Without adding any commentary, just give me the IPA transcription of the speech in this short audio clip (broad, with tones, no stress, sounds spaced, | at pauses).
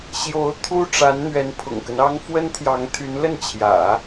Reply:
ɕ j o˧˥ ʊ̯ t̪ʰ u˥ ʈ͡ʂ a˧˥ n n̪ ɥ ɛ˧˥ n pʰ ʊ̰˨˩ ŋ k ə˦ n ɑ˥ ŋ f w ə˥ n t̪ʰ j ɑ˧˥ ŋ t̪ʰ y˧˥ n l ə˥˩ n t͡ɕʰ j ä̰˨˩˦